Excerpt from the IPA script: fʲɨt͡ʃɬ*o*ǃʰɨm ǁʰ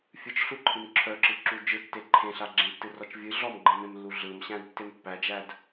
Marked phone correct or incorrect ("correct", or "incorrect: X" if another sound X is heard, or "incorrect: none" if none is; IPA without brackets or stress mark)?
incorrect: u